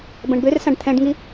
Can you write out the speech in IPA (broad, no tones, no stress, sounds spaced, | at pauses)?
b ɐ̃ ɳ b ø r s ã ɖ t̪ʰ ɛ̃ ɖ ŋ i